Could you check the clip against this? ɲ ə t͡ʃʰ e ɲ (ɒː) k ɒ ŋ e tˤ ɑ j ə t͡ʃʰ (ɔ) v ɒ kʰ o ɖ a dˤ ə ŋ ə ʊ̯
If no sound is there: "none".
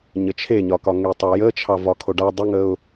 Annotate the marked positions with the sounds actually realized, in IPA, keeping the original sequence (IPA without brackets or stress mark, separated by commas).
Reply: ɒ, ɑ